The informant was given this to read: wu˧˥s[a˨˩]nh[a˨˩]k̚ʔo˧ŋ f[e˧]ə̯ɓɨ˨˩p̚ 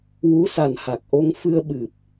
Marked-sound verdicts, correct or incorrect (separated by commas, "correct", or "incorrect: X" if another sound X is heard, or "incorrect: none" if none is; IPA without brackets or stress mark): correct, correct, incorrect: ɨ˧